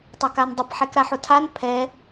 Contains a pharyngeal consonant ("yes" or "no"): yes